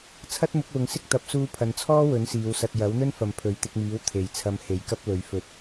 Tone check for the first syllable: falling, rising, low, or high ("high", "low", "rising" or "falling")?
high